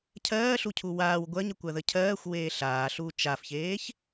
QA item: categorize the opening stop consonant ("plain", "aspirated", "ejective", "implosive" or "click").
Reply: aspirated